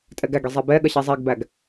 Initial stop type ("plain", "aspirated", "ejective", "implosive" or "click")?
ejective